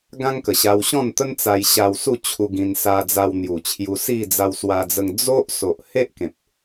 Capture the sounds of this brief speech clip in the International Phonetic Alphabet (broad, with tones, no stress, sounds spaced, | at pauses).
ɡ ã˦ ŋ k ə˨˩ ɕ a˧ w ɕ ɔ̃˥˧ n t̪ ə˦ n t͡s a˧ j ɕ a˧ w s u˥˧ t͡ɕʰ u˧ ɡ ĩ˧ n s a˧ d͡z a˧ w n̪ j u˨˩ t͡ɕʰ j u˧ s i˥˧ d͡z a˧ w s w a˧ d͡z ə˧ ŋ d͡z o˦ ʔ s o˨ ʔ h e˦ ʔ k ẽ˨ p̚